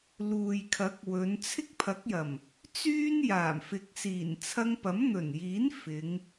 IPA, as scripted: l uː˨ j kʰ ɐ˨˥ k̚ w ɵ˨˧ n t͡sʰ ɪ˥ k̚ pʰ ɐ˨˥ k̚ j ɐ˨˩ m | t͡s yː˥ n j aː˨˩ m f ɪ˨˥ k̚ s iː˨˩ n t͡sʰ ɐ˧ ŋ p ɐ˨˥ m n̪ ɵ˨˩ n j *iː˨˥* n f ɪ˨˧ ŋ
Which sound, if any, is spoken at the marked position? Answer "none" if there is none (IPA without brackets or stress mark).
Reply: iː˨˥